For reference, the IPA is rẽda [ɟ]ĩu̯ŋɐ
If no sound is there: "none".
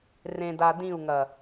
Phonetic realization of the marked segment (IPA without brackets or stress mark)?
d